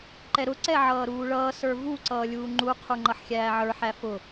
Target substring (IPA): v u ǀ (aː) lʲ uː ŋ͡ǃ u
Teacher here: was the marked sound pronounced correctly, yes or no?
no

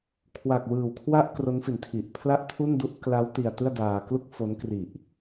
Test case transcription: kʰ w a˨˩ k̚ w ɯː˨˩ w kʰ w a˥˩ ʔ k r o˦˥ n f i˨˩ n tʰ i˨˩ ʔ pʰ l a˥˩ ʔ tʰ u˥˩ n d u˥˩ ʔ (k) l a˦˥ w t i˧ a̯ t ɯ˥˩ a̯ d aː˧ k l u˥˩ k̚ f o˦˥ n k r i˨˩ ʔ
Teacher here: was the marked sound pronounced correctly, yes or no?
yes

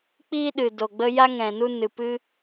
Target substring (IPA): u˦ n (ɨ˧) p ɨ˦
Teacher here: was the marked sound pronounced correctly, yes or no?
no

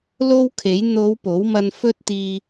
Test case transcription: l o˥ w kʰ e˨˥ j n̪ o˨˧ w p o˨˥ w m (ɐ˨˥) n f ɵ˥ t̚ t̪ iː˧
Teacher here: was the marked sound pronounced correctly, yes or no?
no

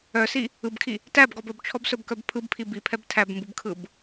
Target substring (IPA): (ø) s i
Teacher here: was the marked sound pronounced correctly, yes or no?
no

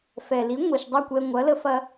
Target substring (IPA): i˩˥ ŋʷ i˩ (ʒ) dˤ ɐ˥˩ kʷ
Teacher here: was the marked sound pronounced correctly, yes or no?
no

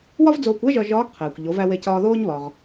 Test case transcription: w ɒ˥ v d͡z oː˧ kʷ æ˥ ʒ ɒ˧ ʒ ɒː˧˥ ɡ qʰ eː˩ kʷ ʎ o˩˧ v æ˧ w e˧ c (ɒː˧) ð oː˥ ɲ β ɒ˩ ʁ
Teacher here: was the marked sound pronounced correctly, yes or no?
yes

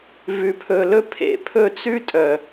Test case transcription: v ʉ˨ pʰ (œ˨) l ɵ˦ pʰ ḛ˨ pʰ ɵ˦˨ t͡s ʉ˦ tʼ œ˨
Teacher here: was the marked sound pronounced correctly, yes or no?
no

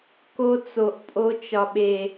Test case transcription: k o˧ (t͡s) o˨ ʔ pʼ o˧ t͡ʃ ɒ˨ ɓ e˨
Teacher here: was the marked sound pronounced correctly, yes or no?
yes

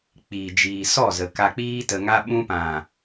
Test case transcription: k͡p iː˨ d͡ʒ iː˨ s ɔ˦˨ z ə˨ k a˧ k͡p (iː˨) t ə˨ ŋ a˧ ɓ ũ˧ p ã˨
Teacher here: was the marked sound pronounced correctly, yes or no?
no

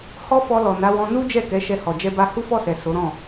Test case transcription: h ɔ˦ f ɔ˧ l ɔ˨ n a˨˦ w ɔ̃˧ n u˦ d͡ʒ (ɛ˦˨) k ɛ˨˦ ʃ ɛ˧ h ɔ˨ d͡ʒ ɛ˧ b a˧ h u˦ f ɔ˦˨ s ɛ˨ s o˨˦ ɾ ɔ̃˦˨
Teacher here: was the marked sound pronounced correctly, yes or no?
yes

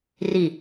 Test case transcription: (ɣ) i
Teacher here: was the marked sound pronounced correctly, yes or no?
no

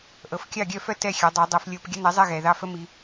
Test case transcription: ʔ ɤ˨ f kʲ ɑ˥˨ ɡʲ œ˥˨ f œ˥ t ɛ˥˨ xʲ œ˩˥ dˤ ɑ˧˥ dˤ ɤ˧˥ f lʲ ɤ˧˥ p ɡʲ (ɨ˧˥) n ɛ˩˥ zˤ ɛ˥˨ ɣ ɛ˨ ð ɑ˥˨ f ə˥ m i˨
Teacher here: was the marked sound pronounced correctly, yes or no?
no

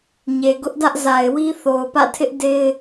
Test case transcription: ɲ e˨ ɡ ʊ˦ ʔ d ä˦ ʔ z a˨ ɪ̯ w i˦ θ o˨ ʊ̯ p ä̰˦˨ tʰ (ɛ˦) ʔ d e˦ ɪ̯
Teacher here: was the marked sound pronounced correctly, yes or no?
no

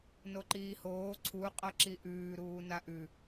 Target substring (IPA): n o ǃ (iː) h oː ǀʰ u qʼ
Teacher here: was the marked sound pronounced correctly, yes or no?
yes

